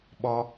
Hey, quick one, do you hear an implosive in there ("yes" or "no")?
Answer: yes